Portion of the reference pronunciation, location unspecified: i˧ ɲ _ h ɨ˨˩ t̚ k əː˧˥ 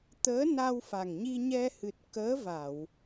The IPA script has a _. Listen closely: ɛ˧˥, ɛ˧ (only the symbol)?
ɛ˧